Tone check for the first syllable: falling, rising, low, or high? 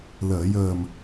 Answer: low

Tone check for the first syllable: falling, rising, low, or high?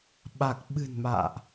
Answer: low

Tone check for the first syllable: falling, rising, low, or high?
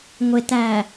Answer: low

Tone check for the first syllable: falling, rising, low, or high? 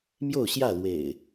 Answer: falling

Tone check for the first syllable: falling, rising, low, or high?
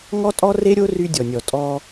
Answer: high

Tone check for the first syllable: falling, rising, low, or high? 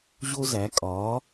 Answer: high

